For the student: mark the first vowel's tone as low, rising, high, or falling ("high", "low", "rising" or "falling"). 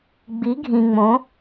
rising